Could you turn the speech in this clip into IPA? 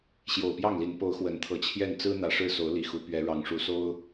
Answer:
ɕ j o˨˩ ʊ̯ p j ɑ˥˨ ŋ l i˨˦ n p o˨˦ ʊ̯ x w ə˨˦ n t̪ʰ ɤ˨˦ t͡ɕʰ j ɛ˥˨ n t͡s ɹ̩˦ n̪ ä˨˩ ʂ ɻ̩˥˨ s o˨˦ ʊ̯ l i˨˩ x u˨˦ p ɥ ɛ˨˦ ɻ ɑ˨˦ ŋ ʂ u˨˦ s o˦ ʊ̯

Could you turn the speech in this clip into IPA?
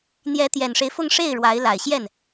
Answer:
n̪ j ɛ˧˥ t̪ j ɛ˨˩ n ʂ e˦ ɪ̯ f ʊ˥˧ ŋ ʂ e˥˩ ɪ̯ ɻ w a˧˥ ɪ̯ l a˨˩ ɪ̯ ɕ j ɛ˥˩ n

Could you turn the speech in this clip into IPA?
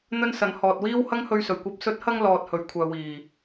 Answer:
n̪ ɵ˥ n s ɐ˨˧ n h ɔː˨ t̚ w iː˥ w h ɐ˥ ŋ h ɵ˧ ɥ s ɵ˨˩ ɥ kʷ ɐ˨ p̚ s ɵ˨˥ t̚ h ɐ˧ ŋ l ɔː˧ t̚ h ɵ˨˧ ɥ kʷʰ œː˨ w iː˨˩

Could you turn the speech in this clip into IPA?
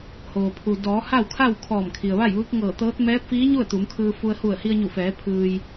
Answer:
h oː˩ pʰ u˩ d ɔː˩˧ h a˥˨ w kʰ a˥˨ w kʰ ɔː˧˩ m kʰ i˩ ə̯ ʋ a˥˨ j ʋ ɯː˧˥ k̚ ŋ ɤː˧˩ t̪ ɤː˧˥ t̚ m ɛː˧˥ p̚ f iː˧˥ ɲ u˥˨ ə̯ t̪ u˩˧ m kʰ ɯː˧ f u˧ ə̯ h u˧˩ ə̯ h i˧ ə̯ ɲ u˧˩ f ɛː˩˧ pʰ ɯː˩ j

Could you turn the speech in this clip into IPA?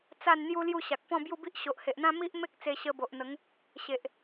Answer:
t͡s a˥˧ n n̪ j u˦ l j u˥˧ ɕ a˨ k̚ p ɔ̃˥˧ b j u˥˧ b i˦ ʔ ɕ o˨ ʔ h e˨ ʔ n̪ ã˦ m i˦ ʔ m e˦ k̚ t͡s e˧ ɕ ə˧ b o˨ ʔ n̪ ə˨˦ ŋ | ɕ e˨ ʔ

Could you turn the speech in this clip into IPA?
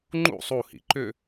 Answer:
ŋ͡ǃ ṵ sˤ u h ḭ ǃ ʏ

